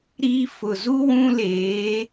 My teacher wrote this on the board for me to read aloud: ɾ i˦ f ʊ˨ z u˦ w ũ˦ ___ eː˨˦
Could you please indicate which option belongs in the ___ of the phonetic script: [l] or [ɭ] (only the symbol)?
l